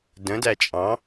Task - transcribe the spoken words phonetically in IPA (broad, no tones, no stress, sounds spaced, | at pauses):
d ə̃ d æ t͡ʃʼ ɑ̃